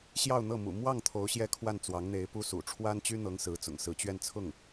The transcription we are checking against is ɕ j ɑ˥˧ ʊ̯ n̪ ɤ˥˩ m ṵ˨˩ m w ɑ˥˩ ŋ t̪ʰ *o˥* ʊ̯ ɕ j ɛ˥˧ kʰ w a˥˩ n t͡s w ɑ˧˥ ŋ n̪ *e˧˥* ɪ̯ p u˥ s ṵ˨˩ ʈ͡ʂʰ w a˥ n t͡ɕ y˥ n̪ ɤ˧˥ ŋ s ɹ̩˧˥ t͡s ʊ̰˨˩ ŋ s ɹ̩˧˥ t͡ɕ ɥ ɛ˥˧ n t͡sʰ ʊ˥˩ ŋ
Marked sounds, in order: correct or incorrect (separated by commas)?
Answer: incorrect, correct